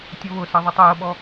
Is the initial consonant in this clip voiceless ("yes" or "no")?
yes